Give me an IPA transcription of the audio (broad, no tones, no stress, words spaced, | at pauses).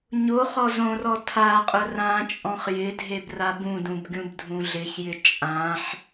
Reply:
ɲo χɔzõrɔ tʰaqʼʊ rãt͡ʃʼɔ̃χ jɪdʱeb rabũdũb ɡʲũbdʱũɮɪçjɪ t͡ʃʼãħ